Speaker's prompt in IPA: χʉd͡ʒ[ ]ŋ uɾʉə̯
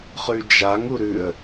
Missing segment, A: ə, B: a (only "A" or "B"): B